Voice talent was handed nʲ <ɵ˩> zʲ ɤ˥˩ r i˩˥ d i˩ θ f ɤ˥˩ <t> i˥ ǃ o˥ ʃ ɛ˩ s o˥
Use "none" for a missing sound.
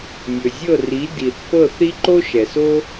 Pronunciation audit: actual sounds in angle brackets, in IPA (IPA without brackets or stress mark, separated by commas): ɵ˩, θ